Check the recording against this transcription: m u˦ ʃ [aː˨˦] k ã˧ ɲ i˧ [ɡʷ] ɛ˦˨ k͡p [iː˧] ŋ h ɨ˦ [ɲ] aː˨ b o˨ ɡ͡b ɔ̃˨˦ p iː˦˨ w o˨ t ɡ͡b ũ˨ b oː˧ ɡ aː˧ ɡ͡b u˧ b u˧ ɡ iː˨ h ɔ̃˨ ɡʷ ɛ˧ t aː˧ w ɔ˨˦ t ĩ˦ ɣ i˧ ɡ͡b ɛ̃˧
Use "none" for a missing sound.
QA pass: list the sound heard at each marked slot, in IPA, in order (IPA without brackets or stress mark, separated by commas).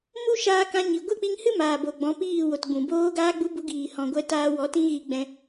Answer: aː˧, ɡʷ, i˧, m